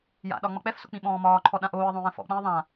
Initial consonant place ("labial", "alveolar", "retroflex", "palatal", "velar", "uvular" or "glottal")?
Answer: palatal